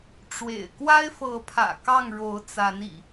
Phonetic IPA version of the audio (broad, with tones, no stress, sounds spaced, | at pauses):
ʈ͡ʂ w ḛ˨˩ ɪ̯ k w a˦ ɪ̯ f ɤ˨˦ pʰ ä̰˨˩ k ɑ˥˨ ŋ ɻ o˨˦ ʊ̯ t͡s a˨˦ n ḭ˨˩